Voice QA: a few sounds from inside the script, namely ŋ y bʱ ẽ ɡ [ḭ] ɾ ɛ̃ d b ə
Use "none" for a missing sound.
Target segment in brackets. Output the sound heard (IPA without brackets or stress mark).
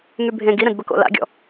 i